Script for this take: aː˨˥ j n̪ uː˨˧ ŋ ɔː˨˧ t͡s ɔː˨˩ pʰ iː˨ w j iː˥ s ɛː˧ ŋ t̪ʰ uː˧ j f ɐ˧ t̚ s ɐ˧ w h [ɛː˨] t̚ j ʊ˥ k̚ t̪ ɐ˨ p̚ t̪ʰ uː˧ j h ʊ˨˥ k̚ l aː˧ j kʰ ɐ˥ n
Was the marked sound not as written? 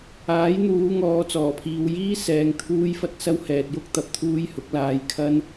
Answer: no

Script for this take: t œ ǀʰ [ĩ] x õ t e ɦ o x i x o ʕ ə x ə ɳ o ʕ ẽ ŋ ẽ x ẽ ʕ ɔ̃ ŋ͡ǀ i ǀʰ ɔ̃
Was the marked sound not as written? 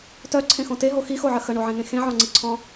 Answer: yes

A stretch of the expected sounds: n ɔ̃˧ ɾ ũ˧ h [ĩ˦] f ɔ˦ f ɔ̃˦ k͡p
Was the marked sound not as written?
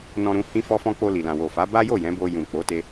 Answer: no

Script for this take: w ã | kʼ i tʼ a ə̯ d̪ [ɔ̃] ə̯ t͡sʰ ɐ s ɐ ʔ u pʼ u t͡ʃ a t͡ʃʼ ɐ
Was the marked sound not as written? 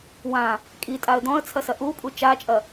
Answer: no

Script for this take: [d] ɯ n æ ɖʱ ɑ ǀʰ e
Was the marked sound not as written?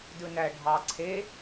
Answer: no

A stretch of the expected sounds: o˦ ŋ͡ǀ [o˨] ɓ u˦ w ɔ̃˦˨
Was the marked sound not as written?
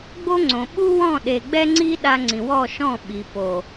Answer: yes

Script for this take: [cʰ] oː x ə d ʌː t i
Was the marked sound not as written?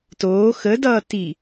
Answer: yes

